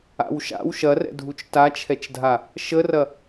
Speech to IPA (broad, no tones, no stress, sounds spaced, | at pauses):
a̰ w ʃ a̰ w ʃ ɐ r ɛ̰ dʱ u t͡ʃ t a t͡ʃʰ ɛ t͡ʃ dʱ a | ʃ ə r ɐ